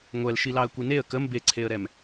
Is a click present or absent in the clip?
present